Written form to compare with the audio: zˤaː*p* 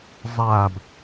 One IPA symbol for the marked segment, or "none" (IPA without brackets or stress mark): b